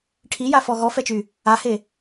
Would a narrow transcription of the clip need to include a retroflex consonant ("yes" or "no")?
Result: yes